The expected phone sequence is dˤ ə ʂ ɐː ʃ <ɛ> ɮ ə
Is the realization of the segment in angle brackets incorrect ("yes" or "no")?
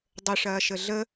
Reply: yes